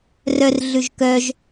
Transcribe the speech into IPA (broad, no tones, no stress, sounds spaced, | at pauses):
r œ r ɮ ʉ ʒ k œ ʒ